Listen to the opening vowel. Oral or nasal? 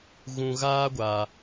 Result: nasal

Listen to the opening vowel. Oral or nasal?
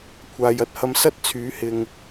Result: oral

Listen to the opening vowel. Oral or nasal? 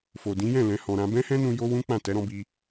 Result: oral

